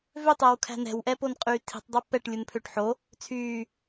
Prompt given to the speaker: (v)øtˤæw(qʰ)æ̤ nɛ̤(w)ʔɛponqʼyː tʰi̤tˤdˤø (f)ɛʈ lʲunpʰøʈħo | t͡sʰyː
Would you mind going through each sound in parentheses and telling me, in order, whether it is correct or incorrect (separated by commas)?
correct, incorrect, correct, incorrect